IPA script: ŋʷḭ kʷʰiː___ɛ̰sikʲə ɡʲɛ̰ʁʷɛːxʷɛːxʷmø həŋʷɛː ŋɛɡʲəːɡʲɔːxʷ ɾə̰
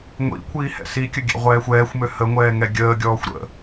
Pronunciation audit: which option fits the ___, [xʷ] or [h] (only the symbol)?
h